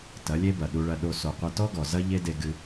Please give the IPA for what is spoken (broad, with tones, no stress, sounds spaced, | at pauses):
t ɐ˨˦ lʲ e˦ b ɐ˨ ɗ u˧ ɭ ɐ˧ ɗ o˧ s o˨ qʷ ɐ˧ t ɔ˦ ɡ ɔ˨ z ɐ˦ ʎ e˦ d e˧ ɡ ɨ˦